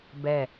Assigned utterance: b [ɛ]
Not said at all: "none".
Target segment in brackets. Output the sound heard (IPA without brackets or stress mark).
ɛ